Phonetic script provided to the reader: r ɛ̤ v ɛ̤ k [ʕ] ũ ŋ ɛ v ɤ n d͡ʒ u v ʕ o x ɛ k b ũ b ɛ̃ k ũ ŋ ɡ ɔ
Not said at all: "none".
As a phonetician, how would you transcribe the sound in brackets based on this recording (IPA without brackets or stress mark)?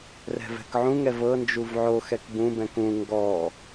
ʕ